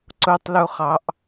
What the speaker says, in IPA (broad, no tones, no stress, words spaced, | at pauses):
ǀʊtˤluχɑʔ